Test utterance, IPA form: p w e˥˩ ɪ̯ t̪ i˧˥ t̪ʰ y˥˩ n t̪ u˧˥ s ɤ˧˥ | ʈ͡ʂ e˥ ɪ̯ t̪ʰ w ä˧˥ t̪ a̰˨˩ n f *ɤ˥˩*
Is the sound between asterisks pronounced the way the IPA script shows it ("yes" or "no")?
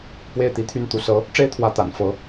no